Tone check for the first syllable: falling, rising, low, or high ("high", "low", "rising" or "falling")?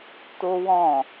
high